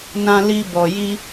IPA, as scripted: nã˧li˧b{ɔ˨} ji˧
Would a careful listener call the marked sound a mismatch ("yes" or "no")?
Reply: no